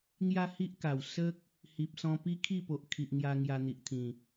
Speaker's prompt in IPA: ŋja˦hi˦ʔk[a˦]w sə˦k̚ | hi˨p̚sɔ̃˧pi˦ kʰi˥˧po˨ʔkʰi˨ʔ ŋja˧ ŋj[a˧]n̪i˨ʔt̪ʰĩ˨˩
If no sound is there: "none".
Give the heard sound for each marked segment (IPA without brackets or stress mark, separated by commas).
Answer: a˨˩, a˧